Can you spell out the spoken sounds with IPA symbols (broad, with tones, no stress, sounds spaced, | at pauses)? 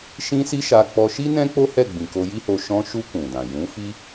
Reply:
ʃ ĩ˦ s i˦ ʃ a˧ k͡p ɔ˧ ʃ i˦ n ɛ̃˦ k͡p o˦ h ɛ˦˨ ɡ͡b ĩ˨ k o˧ j i˦ h o˧ ʃ ɔ̃˧ ʃ u˧ k ũ˨ d ã˨ j ũ˨˦ f i˦